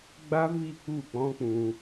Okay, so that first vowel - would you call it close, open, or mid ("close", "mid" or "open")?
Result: open